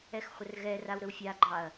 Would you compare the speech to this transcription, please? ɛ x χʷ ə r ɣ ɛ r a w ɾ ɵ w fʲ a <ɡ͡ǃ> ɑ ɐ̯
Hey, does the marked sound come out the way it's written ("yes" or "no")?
yes